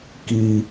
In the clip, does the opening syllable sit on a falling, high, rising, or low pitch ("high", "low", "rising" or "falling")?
high